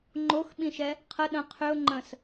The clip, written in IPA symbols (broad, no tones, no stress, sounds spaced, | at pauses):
ŋ͡ǃ o x ɓ ĩ ʃ ɛ | qʰ ə ɗ ə̃ qʰ ʏ ʊ̯ ŋ͡ǃ ə̃ s